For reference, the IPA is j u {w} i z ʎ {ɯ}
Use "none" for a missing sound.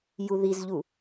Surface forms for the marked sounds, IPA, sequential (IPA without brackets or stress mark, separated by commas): ð, u